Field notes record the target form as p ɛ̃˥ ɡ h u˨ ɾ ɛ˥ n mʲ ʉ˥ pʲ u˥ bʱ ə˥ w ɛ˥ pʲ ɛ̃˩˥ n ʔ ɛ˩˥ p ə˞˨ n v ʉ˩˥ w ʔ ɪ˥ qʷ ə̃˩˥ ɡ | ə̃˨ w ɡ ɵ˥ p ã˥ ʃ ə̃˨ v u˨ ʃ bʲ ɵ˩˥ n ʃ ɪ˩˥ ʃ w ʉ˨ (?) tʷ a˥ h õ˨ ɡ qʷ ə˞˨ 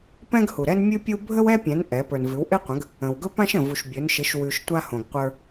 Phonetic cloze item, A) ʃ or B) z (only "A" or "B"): A